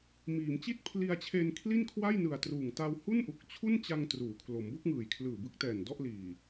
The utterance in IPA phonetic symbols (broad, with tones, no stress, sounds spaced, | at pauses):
m iː˩˦ m t͡ɕ i˥˩ t̚ pʰ l i˧ a̯ t͡ɕʰ e˧ n kʰ l i˥˩ n kʰ w a˥˩ j n ɯ˨˩ a̯ t r uː˨˩ ŋ t a˧ w h u˥˩ n ʔ u˨˩ k̚ t͡ɕʰ u˥˩ n t͡ɕ a˧ ŋ t r uː˩˦ kʰ l o˩˦ m b o˥˩ k̚ ŋ ɯː˨˩ j kʰ l ɯː˨˩ b ɯ˦˥ k̚ t ɛː˨˩ n d ɔ˥˩ ʔ l iː˨˩